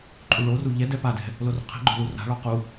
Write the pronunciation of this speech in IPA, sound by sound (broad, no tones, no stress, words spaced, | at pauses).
ǃʼuɭoru ʎɛ dɛpadɛ̤ | lorɔ̤qʰɛ̤ɡ͡ǃo̤ lura̤ɭɔ qu